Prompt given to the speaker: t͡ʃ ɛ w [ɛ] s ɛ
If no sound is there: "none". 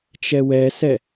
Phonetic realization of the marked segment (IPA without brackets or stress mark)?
ɛ